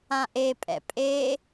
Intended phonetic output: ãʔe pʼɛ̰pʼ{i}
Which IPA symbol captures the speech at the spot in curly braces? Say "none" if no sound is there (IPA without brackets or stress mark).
e